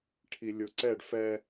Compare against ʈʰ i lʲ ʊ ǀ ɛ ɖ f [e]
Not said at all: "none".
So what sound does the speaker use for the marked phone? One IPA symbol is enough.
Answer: ɛ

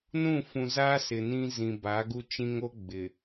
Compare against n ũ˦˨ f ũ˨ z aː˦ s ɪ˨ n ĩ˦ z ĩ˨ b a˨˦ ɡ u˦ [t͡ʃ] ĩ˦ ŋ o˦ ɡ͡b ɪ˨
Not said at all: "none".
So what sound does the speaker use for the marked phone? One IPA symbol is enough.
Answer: t͡ʃ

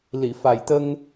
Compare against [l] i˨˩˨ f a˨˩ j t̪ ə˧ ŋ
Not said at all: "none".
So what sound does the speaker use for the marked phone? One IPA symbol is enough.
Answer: l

